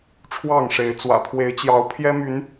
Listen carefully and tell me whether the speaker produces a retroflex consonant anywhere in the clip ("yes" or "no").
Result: yes